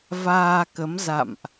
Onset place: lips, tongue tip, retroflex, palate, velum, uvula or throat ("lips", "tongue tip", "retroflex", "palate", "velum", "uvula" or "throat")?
lips